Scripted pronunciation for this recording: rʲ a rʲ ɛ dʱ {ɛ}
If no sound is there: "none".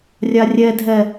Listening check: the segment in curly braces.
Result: ɛ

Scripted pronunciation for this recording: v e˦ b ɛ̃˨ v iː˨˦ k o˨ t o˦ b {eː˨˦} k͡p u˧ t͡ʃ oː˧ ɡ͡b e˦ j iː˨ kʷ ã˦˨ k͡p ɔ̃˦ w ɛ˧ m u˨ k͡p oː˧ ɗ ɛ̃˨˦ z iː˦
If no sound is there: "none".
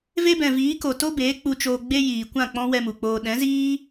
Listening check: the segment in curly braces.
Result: eː˨˦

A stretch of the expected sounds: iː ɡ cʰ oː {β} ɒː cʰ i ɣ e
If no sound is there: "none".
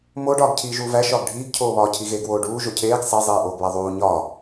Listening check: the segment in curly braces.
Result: β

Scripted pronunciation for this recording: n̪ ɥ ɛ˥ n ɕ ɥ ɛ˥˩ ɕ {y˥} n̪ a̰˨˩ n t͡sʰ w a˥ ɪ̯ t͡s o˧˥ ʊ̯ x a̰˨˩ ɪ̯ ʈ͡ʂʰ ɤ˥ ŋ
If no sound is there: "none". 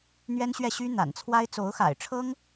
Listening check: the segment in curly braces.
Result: y˥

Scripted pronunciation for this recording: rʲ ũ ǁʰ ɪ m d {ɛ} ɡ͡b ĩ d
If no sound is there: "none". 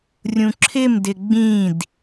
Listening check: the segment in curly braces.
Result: ɪ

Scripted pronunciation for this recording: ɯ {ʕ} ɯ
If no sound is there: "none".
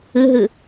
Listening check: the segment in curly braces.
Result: ɦ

